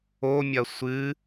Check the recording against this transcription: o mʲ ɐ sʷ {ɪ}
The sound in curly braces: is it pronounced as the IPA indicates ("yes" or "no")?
no